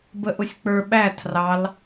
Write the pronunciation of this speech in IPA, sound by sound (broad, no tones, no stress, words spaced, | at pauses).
bəʔʊsʲk͡pə˞ ɓæ tʰrɑl